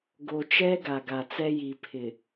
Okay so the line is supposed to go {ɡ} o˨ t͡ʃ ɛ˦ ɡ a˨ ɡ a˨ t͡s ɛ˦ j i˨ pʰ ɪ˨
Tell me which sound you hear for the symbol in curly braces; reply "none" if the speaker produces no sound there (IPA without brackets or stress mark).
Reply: ɡ